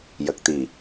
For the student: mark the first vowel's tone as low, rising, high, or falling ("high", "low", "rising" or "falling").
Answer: low